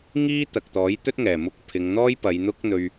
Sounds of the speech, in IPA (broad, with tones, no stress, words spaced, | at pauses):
ŋiː˥t̪ɐ˨k̚ t̪ɔː˨˥jt̪ɵ˥t̚ŋɛː˨˩mʊ˧k̚ pʰɪ˨˧ŋn̪ɔː˥jpɐ˨˧j n̪ʊ˥k̚n̪ɵ˧ɥ